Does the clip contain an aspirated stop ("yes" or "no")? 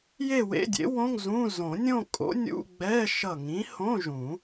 no